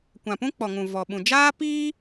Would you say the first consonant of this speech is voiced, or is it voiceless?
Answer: voiceless